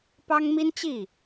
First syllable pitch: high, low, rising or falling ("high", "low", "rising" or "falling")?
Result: high